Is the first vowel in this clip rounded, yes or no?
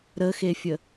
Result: no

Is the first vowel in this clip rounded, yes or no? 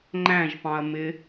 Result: no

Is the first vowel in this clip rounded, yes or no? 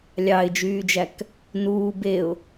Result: no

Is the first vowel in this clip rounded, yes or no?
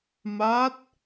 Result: no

